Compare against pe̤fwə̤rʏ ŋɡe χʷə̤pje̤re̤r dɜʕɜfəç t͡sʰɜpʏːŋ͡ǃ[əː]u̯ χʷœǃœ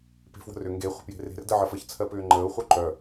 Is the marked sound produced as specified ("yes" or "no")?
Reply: yes